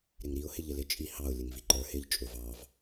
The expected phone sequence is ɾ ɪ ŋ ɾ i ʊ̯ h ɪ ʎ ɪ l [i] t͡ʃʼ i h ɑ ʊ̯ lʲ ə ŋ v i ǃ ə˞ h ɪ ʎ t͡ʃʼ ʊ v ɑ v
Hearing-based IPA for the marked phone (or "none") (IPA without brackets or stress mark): ɪ